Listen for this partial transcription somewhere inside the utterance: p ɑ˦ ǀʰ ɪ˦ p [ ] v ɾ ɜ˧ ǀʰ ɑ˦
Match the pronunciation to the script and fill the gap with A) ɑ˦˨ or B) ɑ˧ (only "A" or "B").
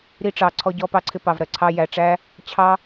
B